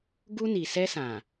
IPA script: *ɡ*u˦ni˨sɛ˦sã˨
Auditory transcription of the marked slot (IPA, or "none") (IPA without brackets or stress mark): ɡ